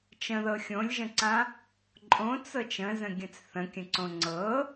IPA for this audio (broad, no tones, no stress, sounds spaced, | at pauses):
t͡ʃ ə̃ ð ɤ xʲ õ lʲ ʒ ə̃ ǀ ã | ǃʼ õ t͡s ɤ t͡ʃ ə̃ z ə̃ ɡʲ ə̃ t͡s θ ə̃ kʲ ə̃ ǀ õ ŋ͡ǀ ɤ